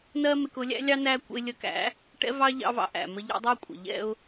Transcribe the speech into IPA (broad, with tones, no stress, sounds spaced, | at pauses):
n ɜ˦ m ɪ˧ k ʊ˧ lʲ æ̰˦ lʲ ɑ˦ n æ˦ kʷ ə̰˧ ɪ̯ lʲ ə˧ k æ̰˨˦ | ʈ ɛ̰˦ v ɑ˦ ʎ ɑ̰˦ v ɑ̰˧ ʔ æ̰˨ m ə˧ ʎ ɑ̰˦ dˤ ɜ˦ kʷʼ ə̰˨ ʎ ɛ̰˧ ʊ̯